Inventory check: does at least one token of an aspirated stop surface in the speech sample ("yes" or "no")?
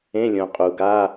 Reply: no